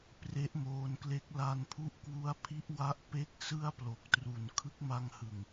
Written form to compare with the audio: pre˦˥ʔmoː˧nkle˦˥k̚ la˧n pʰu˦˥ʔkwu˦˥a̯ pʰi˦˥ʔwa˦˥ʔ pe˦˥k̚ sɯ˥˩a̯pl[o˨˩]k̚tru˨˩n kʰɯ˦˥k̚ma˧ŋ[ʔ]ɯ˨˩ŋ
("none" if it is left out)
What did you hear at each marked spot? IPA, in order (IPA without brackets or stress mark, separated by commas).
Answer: o˨˩, h